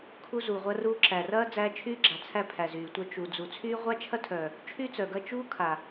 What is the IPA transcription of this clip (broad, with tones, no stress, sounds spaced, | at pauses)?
kʰ u˦ z uː˨ ʁʷ ɐ˦ r uː˦ ǁ æ˨ r ɐː˦ d͡z æː˧ t͡ʃʰ yː˦ ɡ͡ǁ a˨ t͡sʰ æ˦ pʰ æ˨ z yː˨ tʷ œ˧ t͡ʃ u˨ d͡z u˨ t͡sʰ yː˦ ʁʷ a˦ t͡ʃʰ ɐ˦ tʰ œ˨ | t͡ʃʰ y˦ t͡s œ˨ ɡ ɐ˧ t͡ʃ uː˦ kʰ a˨